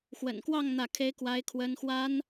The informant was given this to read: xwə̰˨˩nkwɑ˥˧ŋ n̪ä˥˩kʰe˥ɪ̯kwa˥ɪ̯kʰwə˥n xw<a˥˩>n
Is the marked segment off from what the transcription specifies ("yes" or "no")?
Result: yes